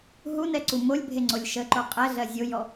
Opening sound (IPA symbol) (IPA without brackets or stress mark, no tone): ɦ